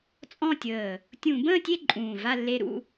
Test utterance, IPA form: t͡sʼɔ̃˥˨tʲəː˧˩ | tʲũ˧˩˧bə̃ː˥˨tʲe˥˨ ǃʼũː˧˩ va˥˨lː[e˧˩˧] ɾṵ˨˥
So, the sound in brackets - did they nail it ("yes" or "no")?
no